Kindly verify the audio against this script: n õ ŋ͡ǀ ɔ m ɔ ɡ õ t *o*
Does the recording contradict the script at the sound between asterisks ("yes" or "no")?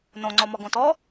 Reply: yes